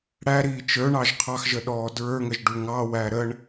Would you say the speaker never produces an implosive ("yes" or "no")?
no